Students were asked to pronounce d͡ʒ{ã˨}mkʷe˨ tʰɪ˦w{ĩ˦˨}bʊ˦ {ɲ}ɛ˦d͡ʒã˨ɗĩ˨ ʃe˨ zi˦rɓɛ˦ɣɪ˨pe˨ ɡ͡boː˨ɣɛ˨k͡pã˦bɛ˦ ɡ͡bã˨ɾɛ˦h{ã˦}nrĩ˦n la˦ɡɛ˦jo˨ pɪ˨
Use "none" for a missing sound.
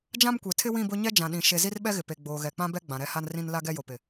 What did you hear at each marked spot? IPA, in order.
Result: ã˦, ĩ˦˨, ɲ, a˦

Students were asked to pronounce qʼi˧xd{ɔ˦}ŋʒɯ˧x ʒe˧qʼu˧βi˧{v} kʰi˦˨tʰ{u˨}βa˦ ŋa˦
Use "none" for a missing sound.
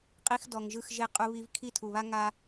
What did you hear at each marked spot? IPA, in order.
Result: ɔ˨, v, u˨

